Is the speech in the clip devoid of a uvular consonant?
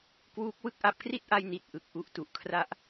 yes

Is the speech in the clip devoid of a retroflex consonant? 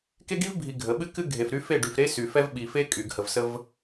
no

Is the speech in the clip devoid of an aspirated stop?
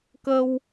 yes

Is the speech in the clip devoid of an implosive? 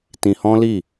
yes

